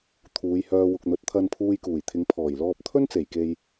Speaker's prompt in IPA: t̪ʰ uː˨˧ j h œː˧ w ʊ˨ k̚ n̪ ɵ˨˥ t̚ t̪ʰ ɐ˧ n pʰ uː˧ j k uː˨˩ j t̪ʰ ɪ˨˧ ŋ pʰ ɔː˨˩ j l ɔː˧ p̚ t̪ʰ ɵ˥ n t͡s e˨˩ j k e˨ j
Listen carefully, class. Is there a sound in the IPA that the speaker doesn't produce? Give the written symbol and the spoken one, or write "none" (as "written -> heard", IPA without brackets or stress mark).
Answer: none